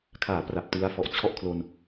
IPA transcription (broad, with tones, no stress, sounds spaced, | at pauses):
kʰ aː˩˦ p r a˨˩ p̚ t ɯ˦˥ a̯ f ɔ˨˩ ʔ t͡ɕʰ ɔ˥˩ ʔ kʰ l o˧ n